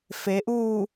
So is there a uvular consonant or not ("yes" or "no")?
no